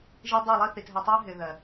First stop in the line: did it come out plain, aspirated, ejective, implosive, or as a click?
plain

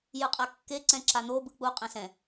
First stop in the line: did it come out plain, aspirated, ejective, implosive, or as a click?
ejective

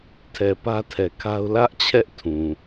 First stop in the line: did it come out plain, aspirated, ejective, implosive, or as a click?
aspirated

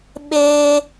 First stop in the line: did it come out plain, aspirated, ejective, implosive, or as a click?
implosive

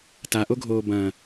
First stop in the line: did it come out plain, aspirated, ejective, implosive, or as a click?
plain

